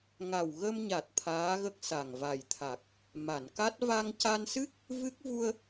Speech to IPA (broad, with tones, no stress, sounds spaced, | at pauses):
ŋ a˨˩ w ɣ ə˧ m ɲ a˨˩ t̚ t̪ʰ aː˧˥ ɣ ə˦˥ k̚ s a˨˩ ŋ v a˨˩ j t̪ʰ a˨˩ k̚ | m a˨˩˨ n k a˦˥ t̚ v a˧ ŋ c a˧ n s ɨ˦˥ k̚ | v ɨ˦˥ k̚ v u˧ ə̯